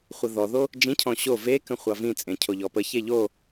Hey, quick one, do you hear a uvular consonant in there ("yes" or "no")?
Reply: yes